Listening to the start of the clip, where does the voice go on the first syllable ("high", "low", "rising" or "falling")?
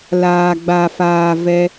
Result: low